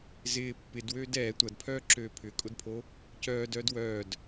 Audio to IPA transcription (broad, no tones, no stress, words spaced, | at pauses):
zɪː pːɪdwøːd ɛː tʷɐdpʰœːǁøː pʰʏkʼʊdpʰo | cœːdœːd wœːd